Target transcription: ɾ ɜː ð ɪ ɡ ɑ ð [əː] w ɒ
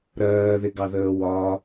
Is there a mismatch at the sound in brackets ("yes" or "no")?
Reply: no